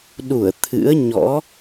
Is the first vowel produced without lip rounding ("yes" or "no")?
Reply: no